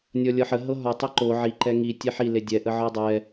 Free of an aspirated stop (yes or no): yes